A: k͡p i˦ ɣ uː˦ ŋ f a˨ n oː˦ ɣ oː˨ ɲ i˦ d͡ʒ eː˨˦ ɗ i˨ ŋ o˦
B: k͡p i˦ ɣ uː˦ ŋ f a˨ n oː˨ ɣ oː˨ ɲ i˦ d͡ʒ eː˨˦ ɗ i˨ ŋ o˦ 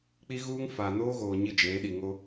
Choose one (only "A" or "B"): A